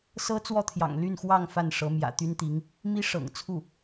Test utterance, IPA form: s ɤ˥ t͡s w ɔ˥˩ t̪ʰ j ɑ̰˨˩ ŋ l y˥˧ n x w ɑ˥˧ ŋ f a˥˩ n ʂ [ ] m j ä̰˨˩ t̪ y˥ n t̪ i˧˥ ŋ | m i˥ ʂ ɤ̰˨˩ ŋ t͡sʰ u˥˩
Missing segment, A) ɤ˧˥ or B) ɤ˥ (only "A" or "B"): A